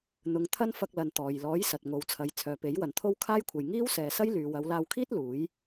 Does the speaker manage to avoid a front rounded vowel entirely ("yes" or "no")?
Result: no